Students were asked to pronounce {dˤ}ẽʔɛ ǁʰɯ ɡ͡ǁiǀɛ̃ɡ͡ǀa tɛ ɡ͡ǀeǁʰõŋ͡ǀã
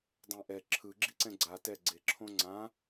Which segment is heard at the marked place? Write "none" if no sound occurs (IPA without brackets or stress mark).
dˤ